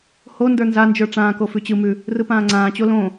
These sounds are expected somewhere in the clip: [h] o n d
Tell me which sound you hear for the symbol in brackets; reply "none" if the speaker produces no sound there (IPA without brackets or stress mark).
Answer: h